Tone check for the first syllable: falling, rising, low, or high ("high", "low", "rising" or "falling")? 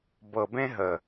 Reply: low